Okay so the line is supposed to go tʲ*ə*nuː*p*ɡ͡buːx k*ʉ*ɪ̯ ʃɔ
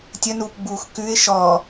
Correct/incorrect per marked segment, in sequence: correct, correct, correct

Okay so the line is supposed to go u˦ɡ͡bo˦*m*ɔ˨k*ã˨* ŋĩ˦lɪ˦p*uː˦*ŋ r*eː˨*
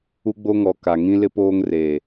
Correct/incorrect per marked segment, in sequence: incorrect, incorrect, incorrect, correct

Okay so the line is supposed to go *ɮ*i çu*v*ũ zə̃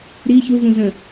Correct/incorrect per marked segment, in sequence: incorrect, correct

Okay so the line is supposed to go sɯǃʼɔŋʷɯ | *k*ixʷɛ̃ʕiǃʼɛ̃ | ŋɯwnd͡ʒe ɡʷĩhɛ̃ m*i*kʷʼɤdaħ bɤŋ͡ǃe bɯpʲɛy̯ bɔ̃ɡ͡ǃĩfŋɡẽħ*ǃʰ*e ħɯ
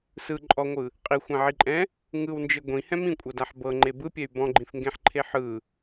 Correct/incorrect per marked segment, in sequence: incorrect, incorrect, correct

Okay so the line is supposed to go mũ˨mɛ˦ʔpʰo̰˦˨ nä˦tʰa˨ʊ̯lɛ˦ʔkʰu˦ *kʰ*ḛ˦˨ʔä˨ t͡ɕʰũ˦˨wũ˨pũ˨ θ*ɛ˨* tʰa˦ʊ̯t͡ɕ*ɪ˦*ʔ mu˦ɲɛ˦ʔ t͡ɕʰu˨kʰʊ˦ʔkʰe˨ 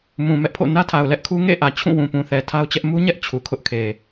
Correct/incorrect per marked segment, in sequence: incorrect, correct, incorrect

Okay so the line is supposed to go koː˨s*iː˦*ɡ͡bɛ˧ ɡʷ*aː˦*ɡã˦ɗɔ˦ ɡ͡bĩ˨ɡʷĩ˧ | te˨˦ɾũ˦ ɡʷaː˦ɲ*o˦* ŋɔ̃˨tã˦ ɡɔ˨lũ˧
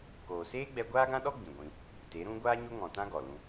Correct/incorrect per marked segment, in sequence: incorrect, correct, correct

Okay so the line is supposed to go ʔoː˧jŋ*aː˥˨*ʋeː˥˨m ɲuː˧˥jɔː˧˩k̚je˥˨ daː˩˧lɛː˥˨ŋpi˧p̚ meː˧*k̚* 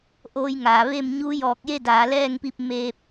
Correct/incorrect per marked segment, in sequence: incorrect, incorrect

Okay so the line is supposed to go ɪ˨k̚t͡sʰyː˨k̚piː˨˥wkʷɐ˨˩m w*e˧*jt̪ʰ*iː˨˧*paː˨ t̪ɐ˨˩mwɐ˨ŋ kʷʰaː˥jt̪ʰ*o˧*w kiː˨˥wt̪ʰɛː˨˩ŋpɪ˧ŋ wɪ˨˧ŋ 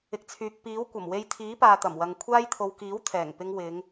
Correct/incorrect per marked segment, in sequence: correct, incorrect, correct

